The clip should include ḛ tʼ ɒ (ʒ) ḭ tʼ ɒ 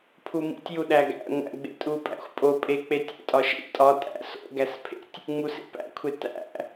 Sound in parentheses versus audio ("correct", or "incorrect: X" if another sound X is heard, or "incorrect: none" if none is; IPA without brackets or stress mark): incorrect: ʃ